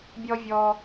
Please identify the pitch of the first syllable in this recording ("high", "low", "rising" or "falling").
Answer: high